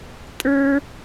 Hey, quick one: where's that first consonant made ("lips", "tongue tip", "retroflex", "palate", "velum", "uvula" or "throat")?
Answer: tongue tip